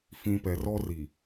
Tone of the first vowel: low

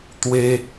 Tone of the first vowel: high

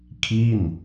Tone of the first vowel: falling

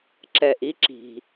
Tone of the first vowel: low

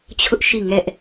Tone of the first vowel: high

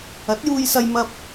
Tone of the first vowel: rising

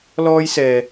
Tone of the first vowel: high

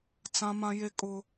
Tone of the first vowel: high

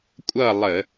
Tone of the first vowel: falling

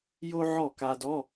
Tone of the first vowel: high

